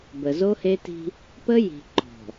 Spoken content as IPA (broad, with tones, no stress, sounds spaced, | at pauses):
b ə˨ z o˦ h e˦ t i̤˦ | p ə˦ j i̤˨ ǃ ɔ̤˨